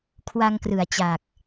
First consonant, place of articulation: velar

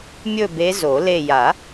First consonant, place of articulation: labial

